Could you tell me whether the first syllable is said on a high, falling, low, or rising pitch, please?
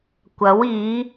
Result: rising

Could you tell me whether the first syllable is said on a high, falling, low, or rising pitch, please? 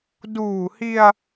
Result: low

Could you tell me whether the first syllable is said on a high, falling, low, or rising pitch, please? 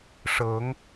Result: rising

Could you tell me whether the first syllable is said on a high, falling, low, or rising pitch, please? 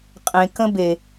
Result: low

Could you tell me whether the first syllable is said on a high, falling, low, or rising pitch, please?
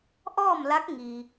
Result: falling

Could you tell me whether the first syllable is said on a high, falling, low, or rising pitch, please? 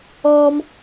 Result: high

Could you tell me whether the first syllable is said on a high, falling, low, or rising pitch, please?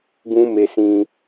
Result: high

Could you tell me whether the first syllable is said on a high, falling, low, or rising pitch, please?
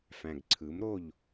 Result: low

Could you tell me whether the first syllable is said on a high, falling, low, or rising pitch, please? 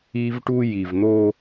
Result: high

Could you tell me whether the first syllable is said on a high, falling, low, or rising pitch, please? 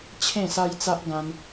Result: falling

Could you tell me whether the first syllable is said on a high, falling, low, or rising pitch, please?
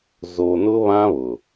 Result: low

